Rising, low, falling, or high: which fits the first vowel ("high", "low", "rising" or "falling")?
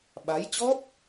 rising